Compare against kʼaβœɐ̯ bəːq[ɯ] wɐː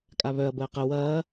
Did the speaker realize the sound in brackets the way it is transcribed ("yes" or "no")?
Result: no